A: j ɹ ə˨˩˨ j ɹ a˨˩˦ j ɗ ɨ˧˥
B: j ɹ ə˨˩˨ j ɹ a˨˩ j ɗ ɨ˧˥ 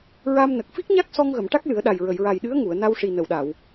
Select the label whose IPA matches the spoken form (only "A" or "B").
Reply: B